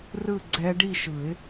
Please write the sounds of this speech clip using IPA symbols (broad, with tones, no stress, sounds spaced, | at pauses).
r ɯ˥˧ ɡ͡ǀ ɛ˦˥ ɖ i˥˧ ʃ ɯ˨˩˦ ɪ̯